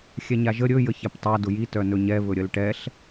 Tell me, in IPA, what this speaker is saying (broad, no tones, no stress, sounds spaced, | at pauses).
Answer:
xʲ ɛ ɲ a ʒ ə ɾʲ ɵ j ə ç ɛ p tˤ a d ʊ j i t œ n ɵ ɲ ɛ β ɵ ɾʲ ə l ʈ ɛ ɬ